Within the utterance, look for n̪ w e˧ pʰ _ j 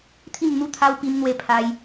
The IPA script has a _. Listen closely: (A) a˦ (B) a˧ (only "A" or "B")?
B